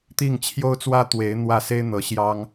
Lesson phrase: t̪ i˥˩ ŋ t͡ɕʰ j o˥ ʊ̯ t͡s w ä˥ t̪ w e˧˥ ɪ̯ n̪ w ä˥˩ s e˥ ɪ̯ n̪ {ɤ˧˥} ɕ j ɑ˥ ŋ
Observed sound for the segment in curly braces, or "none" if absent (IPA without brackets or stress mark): ɤ˧˥